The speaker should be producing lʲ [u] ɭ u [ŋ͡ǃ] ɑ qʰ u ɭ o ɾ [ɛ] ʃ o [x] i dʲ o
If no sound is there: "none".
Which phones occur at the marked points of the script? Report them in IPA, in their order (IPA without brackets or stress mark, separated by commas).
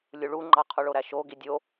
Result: u, ŋ͡ǃ, æ, ɡ